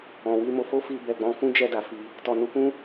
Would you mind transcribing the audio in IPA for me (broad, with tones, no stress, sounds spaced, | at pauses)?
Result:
ɔ̃˨ w i˧ m o˧ f o˦ f i˧ b ɛ˨ ɡ͡b ɔ̃˧ f ũ˦ d͡ʒ ɛ˧ d a˨ f i˧ | t ɔ˨ n u˧ k ũ˦